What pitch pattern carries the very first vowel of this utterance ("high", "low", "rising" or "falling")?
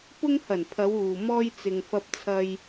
high